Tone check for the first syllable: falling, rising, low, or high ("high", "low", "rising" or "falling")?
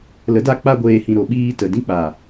rising